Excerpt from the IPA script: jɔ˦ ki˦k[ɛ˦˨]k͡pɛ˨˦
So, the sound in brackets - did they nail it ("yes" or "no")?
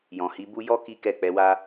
yes